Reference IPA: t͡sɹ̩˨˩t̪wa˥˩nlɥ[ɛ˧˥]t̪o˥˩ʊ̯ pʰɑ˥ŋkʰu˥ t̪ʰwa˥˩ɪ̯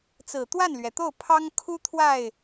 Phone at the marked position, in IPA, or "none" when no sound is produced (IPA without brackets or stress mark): ɛ˩